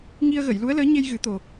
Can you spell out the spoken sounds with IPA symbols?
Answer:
ŋ i˧ ə̯ ɣ ə˨˩˨ j l u˧˥ ə̯ l əː˧˥ ɲ e˧ j ɣ ɨ˨˩˦ t̪ o˨˩

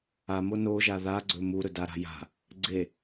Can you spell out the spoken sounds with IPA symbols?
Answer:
a m o n o ʒ a ð a ɡ͡ǀ ɵ m u ɾ ɵ d a ɾ a̤ j a̤ | ɡ͡ǀ e

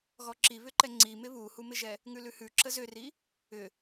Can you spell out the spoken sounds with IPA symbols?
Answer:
ɣ ɔ ǁ i β ʏ ǃ ɛ ŋ͡ǀ i m ɪ β u h u m ɪ ʒ ɛ | ŋ ʉ l ʉ h ʉ ǁ ə z ʏ r i | ʏ

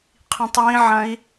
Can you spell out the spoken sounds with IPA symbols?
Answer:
qʰ ĩ tˤ j ĩ ʕ ɐ̃ i̯

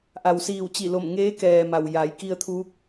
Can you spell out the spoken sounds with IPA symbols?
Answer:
ʔ a˩ w s iː˧˩ w t͡ɕ i˧˩ l o˧˩ m ŋ eː˧˥ k ɛː˩ m a˩ w j a˩˧ j k i˧ ə̯ t̪ʰ uː˧˥ k̚

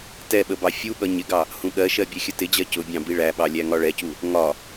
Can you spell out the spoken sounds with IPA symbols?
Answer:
t ɛ ɓ ə b ɑ fʲ u ɠ ʌ ɲ ɪ ɡ ɑ | h ũ ɠ ɜ ʃ ɜ bʲ ɛ xʲ ə t ɪ d͡ʑ ɜ c ʊ bʲ ɑ̃ b i ɭ æ ɓ ɑ lʲ æ ŋ ɒ ɭ ɛ c u | ŋ ɒ

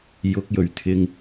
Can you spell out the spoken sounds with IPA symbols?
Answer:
j ʊ˨˥ k̚ j ɵ˨˩ ɥ t̪ʰ ɪ˨ ŋ

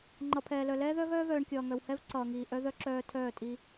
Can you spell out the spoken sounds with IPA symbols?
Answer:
ŋ͡ǃ ʌ˨ pʰ ɛː˨ l œ˨ l ɛː˦ ð œ˦ ɣ œː˦ v œː˨ ɳ kʲ ʌː˨ ŋ œ˨ w h ɛ˦ v ǀ ʌː˨ ŋ iː˨ ʔ œ˦ ð œ˦ ǁ œː˦ tʰ œː˦˨ tʼ i˦

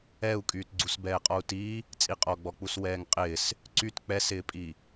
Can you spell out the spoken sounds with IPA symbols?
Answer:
ɛ u̯ kʼ yː t ɡ͡ǀ u s b ɛː qʼ ɔ u̯ t iː | t͡sʼ i qʼ ɔ ɡ͡b ɔ k͡p u s w ɛː ŋ qʼ ɪː s | ǀ y t k͡p ɛ s ɪː pʼ i

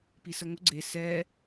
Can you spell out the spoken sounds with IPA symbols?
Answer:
p i s ə ŋ ʊ ɡ͡ǀ e s ɛ

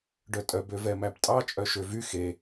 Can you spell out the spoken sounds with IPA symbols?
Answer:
ɖ œ tʼ œ b ø v ɛ m æ b tʼ ɑ t͡ʃʼ œ ʃ ø v y x e

